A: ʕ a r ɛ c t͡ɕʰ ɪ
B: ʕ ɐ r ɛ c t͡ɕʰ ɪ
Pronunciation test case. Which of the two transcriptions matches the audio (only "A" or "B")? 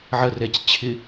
B